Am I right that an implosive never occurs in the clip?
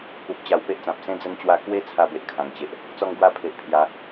yes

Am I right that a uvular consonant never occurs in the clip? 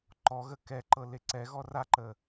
yes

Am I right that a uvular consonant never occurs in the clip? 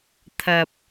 yes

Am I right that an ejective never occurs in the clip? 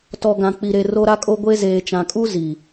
no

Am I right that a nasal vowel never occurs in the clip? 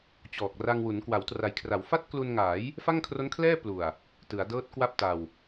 yes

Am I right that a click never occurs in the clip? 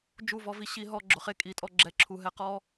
no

